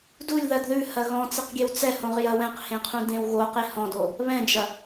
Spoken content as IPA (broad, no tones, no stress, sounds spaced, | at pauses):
d u lʲ ð ɐ d ð ʉ h ɐ ɣ ɔ̃ t͡s ɪ q ɡʲ e w t͡s ɛ h õ ʁ j ɐ w ɛ̃ q h ẽ qʰ ũ d ẽ w ɣ o q e h ɔ̃ d o | β ɛ̃ d͡ʒ ɐ